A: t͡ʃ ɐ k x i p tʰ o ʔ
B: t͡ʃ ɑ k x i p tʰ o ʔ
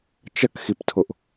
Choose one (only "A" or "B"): A